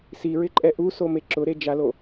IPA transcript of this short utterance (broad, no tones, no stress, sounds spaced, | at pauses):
s i ɹ ɪ ǃʼ ɛ ʔ u s o m e ǁ ʊ ɾ e d͡ʒ a l o